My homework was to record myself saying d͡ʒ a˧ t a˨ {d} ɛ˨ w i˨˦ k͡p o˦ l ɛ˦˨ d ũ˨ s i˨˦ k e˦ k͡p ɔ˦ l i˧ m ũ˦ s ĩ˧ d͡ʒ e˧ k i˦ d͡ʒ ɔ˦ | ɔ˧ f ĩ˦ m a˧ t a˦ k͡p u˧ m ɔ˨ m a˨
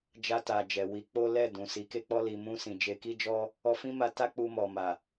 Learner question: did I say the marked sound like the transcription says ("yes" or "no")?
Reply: no